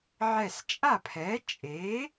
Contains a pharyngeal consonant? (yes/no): yes